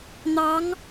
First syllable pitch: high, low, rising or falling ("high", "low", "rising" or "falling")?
rising